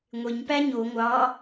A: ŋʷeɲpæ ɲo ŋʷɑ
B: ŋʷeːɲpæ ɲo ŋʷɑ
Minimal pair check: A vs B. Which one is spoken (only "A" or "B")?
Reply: A